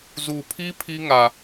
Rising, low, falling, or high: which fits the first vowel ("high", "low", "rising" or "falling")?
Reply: low